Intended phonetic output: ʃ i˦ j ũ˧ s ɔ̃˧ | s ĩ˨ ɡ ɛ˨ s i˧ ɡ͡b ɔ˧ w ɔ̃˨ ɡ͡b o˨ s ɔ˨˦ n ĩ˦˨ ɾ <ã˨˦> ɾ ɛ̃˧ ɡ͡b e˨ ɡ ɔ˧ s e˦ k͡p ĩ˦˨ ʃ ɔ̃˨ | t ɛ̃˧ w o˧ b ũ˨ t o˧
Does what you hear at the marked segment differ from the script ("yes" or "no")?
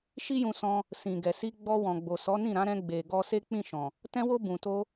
no